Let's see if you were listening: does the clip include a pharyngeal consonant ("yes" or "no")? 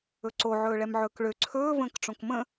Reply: yes